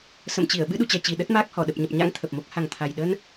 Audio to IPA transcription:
s ə̰˧˨ m t͡ɕ i˧˩ ə̯ ɓ ɨ˧ ɗ ṵ˧˨ t͡ɕ ɛ˨˩ t͡ɕ i˨˩ ɗ ə˦˥ t̚ m aː˦˥ k̚ h ɔ˧˩ ɗ ə˨˩ p̚ ɲ ə˨˩ p̚ ɲ a̰˧˥ ŋ t̪ʰ ə˨˩ p̚ m o˦˥ k̚ h a˨˩ ŋ t̪ʰ a˨˩ j ɗ ə˧ n

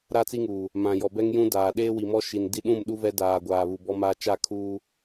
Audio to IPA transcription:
ɾ a˦ t͡s i˦ ŋ uː˨ | m ã˨ j ɔ˨ b ɛ˦ ŋ j ũ˦ d aː˨ ɗ eː˦ w i˨ m ɔ˦ ʃ i˨ n d i˦ ɗ ũ˦˨ m ɗ u˦ v ɛ˦ d aː˨ ɡʷ aː˨ β u˨ b ɔ˦ m aː˦ t͡ʃ a˦˨ kʰ uː˦

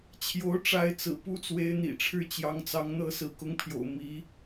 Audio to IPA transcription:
t͡ɕʰ j o˧˥ ʊ̯ ʈ͡ʂ a˧˥ ɪ̯ t͡s ɹ̩˨˩ p u˥˩ t͡s w e˧˥ ɪ̯ n̪ ḭ˨˩ ʈ͡ʂʰ ɻ̩˥˩ t͡ɕ j ɑ˧˥ ŋ t͡s ɑ˧˥ ŋ n̪ ɤ˥˩ s ɹ̩˧˥ k ʊ˧˥ ŋ pʰ j o̰˨˩ ʊ̯ m i˧˥

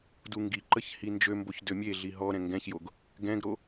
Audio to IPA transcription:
d u ŋ ɡ i ǃ ə ç h i n d͡ʒ ø m b o ç d ø mʲ e ɮ i ɦ ɔ ɾ ɛ̃ ŋ ɡ ɛ̃ ç j o ɡ | ɡ ɛ̃ ɡ ɾ o

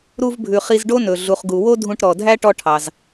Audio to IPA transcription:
ɾ u˧ v bʱ ʉ˩ χ i˧ z ɖ o˥ n ɵ˩ ɮ u˩ χ ɡ u˩ w o˥ dʱ ũ˧ ʈ ɾ ɔ˩ dʱ æ˥ ʈ ɔ˧ ʈʰ ɑ˩ z

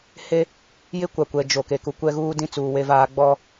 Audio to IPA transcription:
h e˦ | j ɪ˦ kʷ a˨ kʷ ɛ˨ d͡ʒ o˨ k e˨ k u˨ kʷ ɛ˦ ɣ uː˦ d ĩ˦ t͡s uː˨ w e˦ v aː˦ ɡ͡b ɔ˦

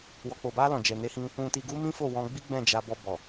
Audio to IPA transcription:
w ɔ˨ k͡p o˨ b a˧ l ɔ̃˨ d͡ʒ ɛ˨ n e˨˦ h ĩ˧ | ũ˨ t i˨ ɡ u˧ m ĩ˦ f o˦˨ w ɔ̃˧ ɡ͡b i˦ ɡ͡b ɛ̃˦˨ d͡ʒ a˧ b ɔ˧ b ɔ˨

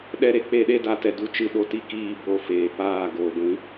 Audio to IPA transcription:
ɗ ɛ˦ ɾ e˨˦ k͡p e˦˨ ɗ e˦ d a˦ t ɛ˧ d u˦ t͡ʃ ɨ˦ ɗ o˧ t i˦ k iː˦˨ b o˦˨ f eː˨ p aː˦˨ ɡ oː˨ ɡʷ ĩ˨˦

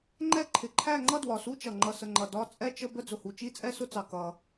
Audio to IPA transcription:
ŋ͡ǃ ɛ˥˧ ǃʰ ɪ˨˩ ǃʰ æ˥˧ ŋ͡ǃ ʌ˥˧ d w ɒ˨˩ s u˥˧ t͡ʃ ʌ˨˩ ŋ͡ǃ ʌ˨˩ s ə˨˩ ŋ͡ǃ ʌ˨˩ d ɒ˥˧ t͡sʼ ɛ˥˧ t͡ʃ ə˥˧ b ə˥˧ d͡z ʊ˨˩ h u˨˩ t͡ʃ i˥˧ t͡sʼ ɛ˥˧ s ʊ˥˧ t͡s ɑ˨˩ k ʌ˨˩

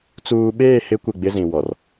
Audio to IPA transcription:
t͡s uː˨ ɓ eː˦˨ h ɪ˦ kʷ ɪ˦˨ ɡ͡b ɪ˦ z ĩ˨ w ɔ˨ r

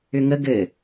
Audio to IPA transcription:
ʏ ŋ ə ɡ ɘ

